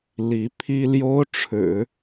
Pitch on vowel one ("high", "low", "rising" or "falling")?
rising